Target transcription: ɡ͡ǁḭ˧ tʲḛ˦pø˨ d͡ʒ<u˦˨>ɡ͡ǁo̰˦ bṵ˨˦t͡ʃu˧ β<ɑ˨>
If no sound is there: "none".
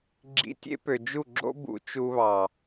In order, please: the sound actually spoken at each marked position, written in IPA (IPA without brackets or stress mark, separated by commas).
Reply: u˦˨, ɑ˨